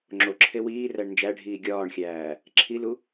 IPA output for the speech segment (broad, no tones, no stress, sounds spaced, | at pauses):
ŋ͡ǁ o ǁʰ e w iː r æ ɳ n d͡ʒ æ ɖʱ iː ɡʲ ɒː ɳ xʲ æː | ǁʰ i l u